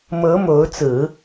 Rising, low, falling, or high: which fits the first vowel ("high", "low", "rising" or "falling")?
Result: rising